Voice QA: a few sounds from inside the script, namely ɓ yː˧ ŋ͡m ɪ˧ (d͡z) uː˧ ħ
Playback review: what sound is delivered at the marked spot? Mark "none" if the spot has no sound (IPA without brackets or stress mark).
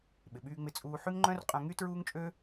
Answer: t͡sʼ